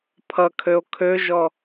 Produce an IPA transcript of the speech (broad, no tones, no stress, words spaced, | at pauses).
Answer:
pʰʌkʰøo̯ kʰøʒɔ